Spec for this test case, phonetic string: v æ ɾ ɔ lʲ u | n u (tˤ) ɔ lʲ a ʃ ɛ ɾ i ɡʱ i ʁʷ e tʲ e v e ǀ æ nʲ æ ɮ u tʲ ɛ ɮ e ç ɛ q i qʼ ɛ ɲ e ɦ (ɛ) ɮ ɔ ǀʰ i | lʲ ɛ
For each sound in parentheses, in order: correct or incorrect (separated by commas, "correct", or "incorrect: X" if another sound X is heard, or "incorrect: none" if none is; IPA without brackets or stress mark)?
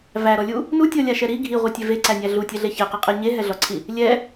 incorrect: tʲ, correct